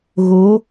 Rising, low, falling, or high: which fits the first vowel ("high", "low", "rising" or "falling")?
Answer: rising